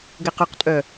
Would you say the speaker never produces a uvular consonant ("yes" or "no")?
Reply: no